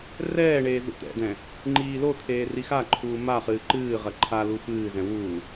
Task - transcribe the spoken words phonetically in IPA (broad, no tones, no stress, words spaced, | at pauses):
rɛːɳeː zṵt̪ɛ̰d̪ɛ̃ | ŋ͡ǃiːlot̪ʰeː rixaǃʰuː ma χɨːǃɨːʁɐ ǃʰalu fɨːzɛ̃ wuː